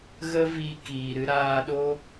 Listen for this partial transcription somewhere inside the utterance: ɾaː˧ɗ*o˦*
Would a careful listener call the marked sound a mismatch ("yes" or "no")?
no